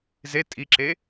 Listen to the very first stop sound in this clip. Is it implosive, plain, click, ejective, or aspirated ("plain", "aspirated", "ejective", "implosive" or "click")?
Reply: ejective